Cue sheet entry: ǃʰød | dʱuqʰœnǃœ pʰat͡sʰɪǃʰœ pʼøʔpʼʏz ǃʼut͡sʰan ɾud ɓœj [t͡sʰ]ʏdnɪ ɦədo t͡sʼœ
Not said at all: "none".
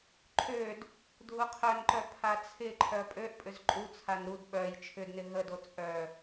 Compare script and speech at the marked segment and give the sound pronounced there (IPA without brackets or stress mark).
t͡ʃʰ